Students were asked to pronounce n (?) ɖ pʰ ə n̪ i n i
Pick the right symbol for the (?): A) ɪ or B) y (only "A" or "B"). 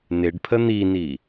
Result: A